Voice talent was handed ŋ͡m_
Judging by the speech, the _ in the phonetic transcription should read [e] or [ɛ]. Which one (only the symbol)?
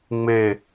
e